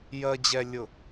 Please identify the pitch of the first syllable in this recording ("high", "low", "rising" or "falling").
low